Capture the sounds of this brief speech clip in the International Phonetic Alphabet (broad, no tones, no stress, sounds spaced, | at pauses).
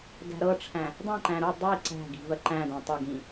d æ̤ ɾ ɤ ʈ͡ʂʰ æ̃ | dˤ ã ǃ æ̃ ɾ u dˤ i ǀ æ̤ ɡ i̤ v ɜ ǃ æ̃ d æ̃ tˤ e ɡ ĩ